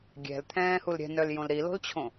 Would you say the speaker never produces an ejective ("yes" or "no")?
yes